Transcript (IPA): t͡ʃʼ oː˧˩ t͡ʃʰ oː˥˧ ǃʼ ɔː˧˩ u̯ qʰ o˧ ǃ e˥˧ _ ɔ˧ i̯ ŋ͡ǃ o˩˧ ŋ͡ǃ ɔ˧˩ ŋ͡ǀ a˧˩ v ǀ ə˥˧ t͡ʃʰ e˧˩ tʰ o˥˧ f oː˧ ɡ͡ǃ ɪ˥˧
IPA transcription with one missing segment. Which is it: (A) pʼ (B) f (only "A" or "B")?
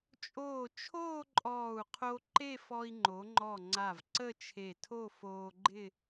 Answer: B